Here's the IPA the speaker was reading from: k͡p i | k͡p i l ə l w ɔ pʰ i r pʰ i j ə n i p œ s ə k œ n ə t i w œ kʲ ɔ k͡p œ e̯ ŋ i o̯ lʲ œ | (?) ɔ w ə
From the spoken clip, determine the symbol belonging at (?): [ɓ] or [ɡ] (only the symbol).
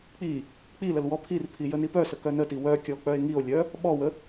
ɓ